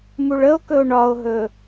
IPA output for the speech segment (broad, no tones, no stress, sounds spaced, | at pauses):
m u ɭ ə o̯ k ɵ o̯ ɳ ɒ o̯ ɦ ɵ